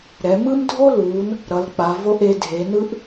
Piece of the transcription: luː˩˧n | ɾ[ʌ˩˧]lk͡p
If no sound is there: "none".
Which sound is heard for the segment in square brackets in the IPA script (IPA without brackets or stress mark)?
ʌ˩˧